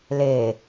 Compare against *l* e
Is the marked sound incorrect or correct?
correct